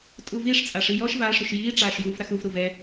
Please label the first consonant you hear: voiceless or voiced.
voiceless